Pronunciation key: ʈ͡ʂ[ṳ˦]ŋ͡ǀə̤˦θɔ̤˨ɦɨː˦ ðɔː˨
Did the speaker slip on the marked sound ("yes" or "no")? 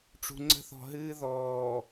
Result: yes